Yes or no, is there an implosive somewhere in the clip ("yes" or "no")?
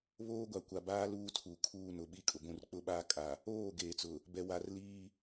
yes